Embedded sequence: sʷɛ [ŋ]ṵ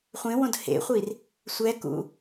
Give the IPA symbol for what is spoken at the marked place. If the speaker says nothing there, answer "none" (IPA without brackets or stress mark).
k